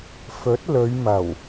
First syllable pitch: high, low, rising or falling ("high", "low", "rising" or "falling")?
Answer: rising